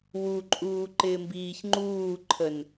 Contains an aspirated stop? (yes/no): yes